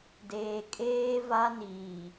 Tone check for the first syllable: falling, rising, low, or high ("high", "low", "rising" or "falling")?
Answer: low